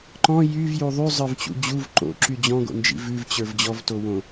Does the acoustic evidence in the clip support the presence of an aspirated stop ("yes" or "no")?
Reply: no